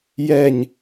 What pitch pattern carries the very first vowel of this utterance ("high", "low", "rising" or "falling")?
falling